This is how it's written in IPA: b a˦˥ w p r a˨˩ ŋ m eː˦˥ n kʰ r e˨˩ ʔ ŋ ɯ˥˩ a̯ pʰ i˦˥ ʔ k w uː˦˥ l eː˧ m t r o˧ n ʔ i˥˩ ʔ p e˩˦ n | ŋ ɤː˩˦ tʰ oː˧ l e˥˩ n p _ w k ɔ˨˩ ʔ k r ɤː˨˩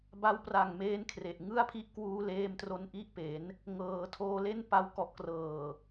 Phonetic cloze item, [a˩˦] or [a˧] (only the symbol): a˧